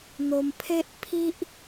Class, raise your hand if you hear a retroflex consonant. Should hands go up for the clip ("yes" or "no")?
no